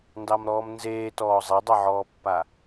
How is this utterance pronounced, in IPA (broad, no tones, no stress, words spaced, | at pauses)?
ndɑmɾɔːmnzeːtɔː zˤedˤoʕɔːpːa